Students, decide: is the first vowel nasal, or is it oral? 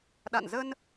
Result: oral